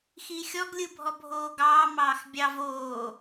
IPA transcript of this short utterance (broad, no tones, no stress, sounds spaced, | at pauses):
x i xʲ ɔ ɡ lʲ ɯ bʱ ɔ bʱ oː ɡ ɑː m ɑː x bʲ ɑ v oː